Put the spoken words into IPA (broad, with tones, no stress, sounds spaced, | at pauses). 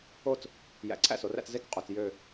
o˥˧ t͡s | j æ̰˨˥ ǀʰ æ̰˥˧ s o˩˧ r æ̰˥˧ t͡s z e˥˧ k qʼ u˩˧˩ t͡s j ø˥˧